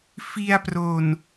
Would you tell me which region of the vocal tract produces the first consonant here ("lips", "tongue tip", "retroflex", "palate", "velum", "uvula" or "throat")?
lips